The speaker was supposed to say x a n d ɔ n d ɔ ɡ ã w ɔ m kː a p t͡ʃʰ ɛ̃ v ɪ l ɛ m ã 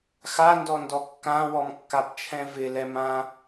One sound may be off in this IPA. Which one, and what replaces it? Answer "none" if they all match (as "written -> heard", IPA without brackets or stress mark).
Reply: ɡ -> kː